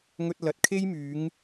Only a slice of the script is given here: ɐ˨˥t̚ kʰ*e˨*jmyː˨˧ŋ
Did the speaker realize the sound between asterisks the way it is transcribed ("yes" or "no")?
no